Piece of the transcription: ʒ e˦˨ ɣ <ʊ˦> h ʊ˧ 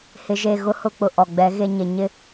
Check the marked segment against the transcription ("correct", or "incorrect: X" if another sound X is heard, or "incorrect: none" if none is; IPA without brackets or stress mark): correct